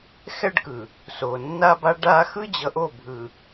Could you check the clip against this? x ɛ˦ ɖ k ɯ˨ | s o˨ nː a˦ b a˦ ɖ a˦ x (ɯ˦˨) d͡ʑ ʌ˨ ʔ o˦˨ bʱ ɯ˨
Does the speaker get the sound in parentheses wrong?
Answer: yes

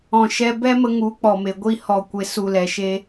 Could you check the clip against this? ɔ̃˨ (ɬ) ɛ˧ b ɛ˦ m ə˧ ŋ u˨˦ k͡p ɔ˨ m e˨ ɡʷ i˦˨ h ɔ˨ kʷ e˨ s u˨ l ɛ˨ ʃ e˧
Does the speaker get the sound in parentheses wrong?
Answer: yes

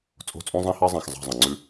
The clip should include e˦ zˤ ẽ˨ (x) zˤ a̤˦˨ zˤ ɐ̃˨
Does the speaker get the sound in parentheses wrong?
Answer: no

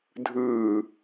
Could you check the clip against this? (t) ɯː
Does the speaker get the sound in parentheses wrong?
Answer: yes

